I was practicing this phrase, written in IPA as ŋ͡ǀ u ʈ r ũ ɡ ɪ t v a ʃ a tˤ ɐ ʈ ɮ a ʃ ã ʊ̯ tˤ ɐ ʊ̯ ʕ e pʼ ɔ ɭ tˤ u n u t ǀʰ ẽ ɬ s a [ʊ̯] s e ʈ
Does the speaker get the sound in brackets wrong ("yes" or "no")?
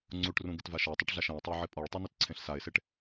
yes